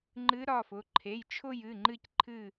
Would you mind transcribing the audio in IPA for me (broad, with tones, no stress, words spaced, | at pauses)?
ŋ͡ǃɨ˧˥ɾɒ˩˧˩fʊ˩˧˩ ǃʰe˩˧˩jt͡ʃʰʊ˦˨j ɨ˩˧˩ŋ͡ǃɨ˦˨cǃʰɨ˦˨